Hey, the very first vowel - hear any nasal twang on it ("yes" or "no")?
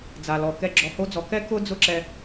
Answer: no